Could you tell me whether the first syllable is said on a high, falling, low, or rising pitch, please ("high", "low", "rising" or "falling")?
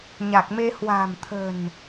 low